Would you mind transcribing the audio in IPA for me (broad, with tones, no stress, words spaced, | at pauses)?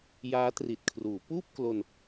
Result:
jaː˦˥tri˨˩t̚kʰruː˩˦ puː˥˩p̚klo˧n